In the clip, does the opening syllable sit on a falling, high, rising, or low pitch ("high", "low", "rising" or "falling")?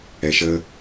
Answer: low